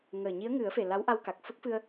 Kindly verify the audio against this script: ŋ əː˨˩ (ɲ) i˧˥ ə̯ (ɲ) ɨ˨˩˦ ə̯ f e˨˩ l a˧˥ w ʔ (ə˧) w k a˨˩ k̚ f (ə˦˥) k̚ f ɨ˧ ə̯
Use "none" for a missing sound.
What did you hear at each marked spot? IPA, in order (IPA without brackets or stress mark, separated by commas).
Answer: ɲ, ŋ, a˧, ə˦˥